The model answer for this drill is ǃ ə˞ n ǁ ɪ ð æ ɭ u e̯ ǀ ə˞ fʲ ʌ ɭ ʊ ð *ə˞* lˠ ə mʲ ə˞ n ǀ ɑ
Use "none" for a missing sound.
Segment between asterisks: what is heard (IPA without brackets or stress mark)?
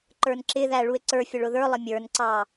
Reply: ə˞